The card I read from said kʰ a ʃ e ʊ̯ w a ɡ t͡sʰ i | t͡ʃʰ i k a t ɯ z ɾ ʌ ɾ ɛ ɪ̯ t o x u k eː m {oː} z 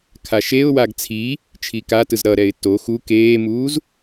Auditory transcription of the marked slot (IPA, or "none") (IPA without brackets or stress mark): uː